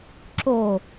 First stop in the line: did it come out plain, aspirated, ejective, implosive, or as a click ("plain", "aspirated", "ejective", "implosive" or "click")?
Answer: click